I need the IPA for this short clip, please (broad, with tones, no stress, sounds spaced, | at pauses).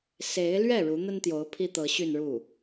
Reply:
s e˧˥ ɪ̯ l ɥ ɛ˥˩ ɻ u˧˥ n̪ ə˥ n t̪ j o˧˥ ʊ̯ pʰ i˥ t̪ ɤ˧˥ ɕ y˥˧ n ɻ u˥˩